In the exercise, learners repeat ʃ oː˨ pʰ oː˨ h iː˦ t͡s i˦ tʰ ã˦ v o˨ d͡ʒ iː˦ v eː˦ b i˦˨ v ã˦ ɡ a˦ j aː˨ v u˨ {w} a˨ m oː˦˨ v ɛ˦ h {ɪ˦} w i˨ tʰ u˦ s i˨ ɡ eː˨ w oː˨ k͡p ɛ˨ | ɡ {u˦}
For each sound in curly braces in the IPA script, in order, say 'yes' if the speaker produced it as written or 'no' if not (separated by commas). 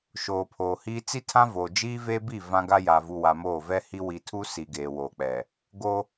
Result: yes, no, no